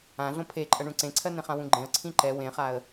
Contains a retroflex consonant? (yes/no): yes